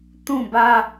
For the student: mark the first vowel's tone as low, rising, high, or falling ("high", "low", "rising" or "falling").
falling